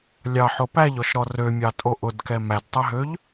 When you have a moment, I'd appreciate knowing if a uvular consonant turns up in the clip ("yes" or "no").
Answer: no